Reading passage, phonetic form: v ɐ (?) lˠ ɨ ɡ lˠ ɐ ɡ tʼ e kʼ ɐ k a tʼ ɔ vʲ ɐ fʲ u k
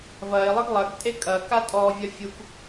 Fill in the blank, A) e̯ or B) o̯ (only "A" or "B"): A